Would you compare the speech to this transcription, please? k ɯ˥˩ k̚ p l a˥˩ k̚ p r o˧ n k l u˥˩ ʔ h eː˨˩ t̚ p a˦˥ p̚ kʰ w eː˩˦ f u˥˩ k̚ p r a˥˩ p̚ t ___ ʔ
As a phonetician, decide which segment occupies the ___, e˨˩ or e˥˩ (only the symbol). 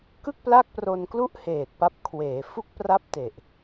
e˨˩